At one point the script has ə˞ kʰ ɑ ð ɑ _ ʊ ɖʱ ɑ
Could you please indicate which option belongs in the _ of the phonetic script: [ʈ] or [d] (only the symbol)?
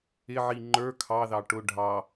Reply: ʈ